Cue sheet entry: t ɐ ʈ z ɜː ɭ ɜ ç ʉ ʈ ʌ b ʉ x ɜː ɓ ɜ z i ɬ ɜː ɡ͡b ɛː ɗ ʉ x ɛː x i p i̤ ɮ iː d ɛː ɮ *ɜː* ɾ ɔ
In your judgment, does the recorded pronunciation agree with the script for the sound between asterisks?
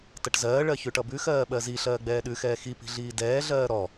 yes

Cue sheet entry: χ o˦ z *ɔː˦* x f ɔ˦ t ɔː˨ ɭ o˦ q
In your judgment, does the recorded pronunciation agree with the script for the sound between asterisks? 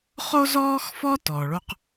yes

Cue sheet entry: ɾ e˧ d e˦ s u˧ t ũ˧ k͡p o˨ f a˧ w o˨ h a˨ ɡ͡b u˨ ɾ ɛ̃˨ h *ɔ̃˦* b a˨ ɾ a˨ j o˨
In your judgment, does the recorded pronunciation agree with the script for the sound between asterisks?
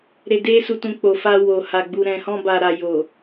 no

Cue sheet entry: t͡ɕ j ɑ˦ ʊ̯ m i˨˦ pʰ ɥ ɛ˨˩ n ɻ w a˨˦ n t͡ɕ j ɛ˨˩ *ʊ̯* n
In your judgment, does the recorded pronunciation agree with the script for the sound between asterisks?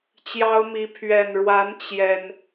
no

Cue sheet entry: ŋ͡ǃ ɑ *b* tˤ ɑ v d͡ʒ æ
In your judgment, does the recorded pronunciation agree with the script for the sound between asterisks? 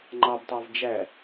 yes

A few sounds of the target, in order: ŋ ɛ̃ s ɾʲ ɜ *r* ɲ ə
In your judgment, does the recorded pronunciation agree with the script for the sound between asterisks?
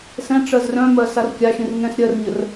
yes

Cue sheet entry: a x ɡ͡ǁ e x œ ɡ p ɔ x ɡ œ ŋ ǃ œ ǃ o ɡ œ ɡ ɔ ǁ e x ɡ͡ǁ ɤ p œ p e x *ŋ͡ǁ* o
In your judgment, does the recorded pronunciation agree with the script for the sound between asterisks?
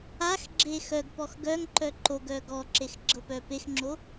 yes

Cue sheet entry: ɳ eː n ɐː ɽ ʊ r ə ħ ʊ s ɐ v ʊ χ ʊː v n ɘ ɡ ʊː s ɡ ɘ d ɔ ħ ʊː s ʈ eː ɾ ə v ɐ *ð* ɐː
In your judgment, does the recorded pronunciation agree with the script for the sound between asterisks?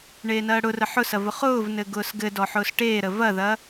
yes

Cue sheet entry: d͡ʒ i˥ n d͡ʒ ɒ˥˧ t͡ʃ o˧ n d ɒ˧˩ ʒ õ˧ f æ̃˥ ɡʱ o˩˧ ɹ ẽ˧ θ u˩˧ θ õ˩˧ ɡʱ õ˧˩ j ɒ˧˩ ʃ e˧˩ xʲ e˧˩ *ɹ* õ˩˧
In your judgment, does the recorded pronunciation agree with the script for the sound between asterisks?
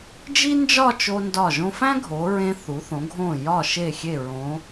yes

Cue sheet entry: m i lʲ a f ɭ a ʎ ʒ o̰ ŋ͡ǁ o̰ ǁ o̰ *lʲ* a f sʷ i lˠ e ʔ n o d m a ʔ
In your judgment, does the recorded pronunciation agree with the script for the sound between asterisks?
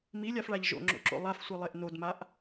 no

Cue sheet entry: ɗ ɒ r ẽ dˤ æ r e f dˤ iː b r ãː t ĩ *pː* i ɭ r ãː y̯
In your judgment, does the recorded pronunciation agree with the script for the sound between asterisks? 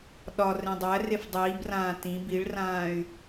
no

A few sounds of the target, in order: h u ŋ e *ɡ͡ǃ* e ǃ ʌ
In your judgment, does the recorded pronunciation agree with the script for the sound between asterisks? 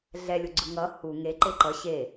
no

